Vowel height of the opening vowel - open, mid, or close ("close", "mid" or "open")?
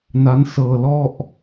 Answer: open